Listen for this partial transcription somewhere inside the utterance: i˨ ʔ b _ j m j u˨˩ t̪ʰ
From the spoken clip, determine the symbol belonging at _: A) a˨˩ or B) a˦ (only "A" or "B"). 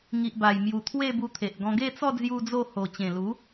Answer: A